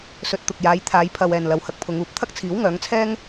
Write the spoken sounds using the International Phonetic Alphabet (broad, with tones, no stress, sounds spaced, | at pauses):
s ɵ˧ t̚ t̪ ʊ˨ k̚ j aː˨˧ j t̪ʰ aː˨˧ j pʰ ɐ˨ w ɛː˨ n l ɐ˨ w h ɐ˧ k̚ pʰ ʊ˨˧ ŋ uː˨˥ p̚ t̪ʰ ɐ˥ k̚ t͡sʰ iː˨˥ w ŋ œː˨˧ ŋ t͡sʰ ɛː˥ ŋ